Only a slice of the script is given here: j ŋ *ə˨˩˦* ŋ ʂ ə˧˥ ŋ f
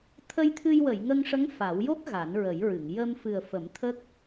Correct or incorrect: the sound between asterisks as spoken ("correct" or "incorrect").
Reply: incorrect